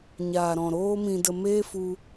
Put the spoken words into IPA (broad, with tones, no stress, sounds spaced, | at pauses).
ɲ aː˨ ɾ ɔ̃˨ ɾ oː˦ m ĩ˧ d ə˧ m eː˦ f u˧